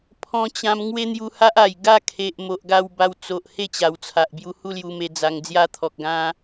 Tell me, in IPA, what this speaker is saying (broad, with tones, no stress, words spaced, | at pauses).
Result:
pʰɔ̃˧t͡ɕã˧m ŋwe˦n̪ju˧ha˦ʔa˨˩j ɡa˥˧kʰe˨ʔ mo˨ʔɡa˧wba˧wt͡so˨ʔ he˥˧t͡ɕa˨˩wt͡sʰa˨ʔ bju˧hu˥˧lju˧me˧ d͡za˧ŋ d͡zja˧t̪ʰɔ˨k̚ɡã˧